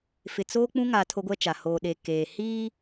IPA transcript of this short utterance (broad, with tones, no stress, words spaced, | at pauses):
fɪ˨t͡soː˦k͡pũ˦ ŋa˦ tʰo˦ɡʷɛ˦t͡ʃa˨ hoː˨ɗe˨ keː˨ hiː˦